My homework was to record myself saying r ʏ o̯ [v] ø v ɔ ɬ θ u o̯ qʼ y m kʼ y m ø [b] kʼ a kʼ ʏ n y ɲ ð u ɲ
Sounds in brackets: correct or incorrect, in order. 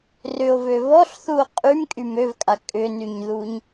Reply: correct, incorrect

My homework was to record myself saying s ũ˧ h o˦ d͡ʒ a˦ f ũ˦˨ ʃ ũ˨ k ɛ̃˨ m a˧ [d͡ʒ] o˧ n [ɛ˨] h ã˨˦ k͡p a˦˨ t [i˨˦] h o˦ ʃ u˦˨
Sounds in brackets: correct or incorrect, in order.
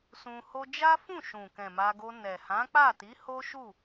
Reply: incorrect, correct, correct

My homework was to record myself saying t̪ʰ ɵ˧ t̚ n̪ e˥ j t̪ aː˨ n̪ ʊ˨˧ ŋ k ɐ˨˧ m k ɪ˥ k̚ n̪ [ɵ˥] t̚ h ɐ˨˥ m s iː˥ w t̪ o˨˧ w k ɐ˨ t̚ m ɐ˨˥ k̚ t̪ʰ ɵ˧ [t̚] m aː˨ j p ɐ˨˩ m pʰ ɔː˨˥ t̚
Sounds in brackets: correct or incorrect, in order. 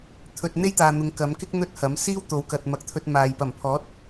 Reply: correct, correct

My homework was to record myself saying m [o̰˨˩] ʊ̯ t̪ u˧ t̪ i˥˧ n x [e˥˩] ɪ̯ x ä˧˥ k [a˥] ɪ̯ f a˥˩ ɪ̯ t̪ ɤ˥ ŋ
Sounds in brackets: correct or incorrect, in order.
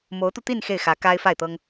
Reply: incorrect, correct, correct

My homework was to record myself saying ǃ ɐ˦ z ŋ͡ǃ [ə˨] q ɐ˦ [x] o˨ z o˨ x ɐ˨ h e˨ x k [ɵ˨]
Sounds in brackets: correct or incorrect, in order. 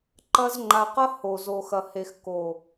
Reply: incorrect, incorrect, incorrect

